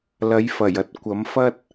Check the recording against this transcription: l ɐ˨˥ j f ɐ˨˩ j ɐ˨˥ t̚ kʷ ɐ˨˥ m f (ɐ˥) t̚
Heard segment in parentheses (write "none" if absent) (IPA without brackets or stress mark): ɐ˥